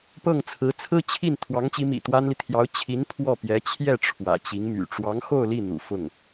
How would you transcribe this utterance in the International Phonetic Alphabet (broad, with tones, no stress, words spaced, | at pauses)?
pɤ˥˩ŋ t͡sʰɹ̩˧˥t͡sʰɹ̩˥t͡ɕʰi˥˩n t̪ʰwɑ˧˥ŋt͡ɕi˧˥mḭ˨˩ t̪wa˥nli˨ t̪ʰjɑ˧˥ʊ̯ t͡ɕʰi˧˥n pʰwɔ˥˩pjɛ˧˥ t͡ɕʰjɛ˥˩ ʈ͡ʂʰwä̰˨˩t͡ɕi˧˥ŋmy̰˨˩ ʈ͡ʂwɑ˧˥ŋ xo˥˧ʊ̯li˥˩n̪ṵ˨˩ fʊ˥˩ŋ